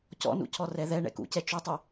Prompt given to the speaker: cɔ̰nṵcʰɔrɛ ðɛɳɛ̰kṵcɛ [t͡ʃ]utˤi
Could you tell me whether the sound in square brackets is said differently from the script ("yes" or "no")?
no